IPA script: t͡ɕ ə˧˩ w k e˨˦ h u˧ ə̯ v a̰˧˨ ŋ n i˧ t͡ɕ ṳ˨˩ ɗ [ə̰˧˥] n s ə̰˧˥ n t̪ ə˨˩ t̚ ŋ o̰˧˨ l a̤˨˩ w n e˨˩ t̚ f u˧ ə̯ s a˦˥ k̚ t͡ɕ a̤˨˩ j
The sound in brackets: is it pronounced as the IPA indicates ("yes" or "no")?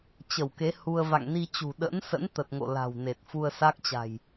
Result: yes